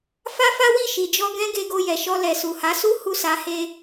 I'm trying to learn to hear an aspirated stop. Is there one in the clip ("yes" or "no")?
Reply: no